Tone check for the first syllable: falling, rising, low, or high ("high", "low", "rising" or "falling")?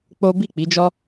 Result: high